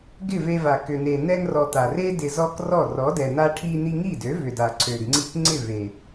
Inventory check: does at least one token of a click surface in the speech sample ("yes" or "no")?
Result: yes